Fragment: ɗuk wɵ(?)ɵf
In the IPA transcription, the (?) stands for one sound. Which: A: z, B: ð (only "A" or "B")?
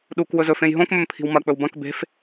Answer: A